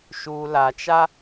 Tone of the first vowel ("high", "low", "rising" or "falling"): low